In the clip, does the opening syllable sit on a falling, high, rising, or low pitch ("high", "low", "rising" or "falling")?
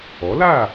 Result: rising